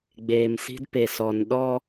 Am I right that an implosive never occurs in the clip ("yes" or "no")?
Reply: no